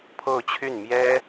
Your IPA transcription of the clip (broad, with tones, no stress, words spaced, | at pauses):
pʰo˥˧ʊ̯t͡ɕʰy˥˩n mjɛ˥